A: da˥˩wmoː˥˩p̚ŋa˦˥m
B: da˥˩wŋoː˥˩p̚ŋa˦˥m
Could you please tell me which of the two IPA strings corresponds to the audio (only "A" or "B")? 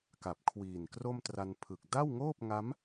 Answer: B